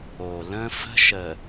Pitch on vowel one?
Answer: low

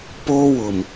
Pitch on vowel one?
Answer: high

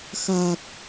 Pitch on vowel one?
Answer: low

